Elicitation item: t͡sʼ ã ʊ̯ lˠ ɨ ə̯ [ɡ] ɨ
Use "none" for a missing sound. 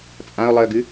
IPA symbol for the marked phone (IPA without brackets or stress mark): ɡ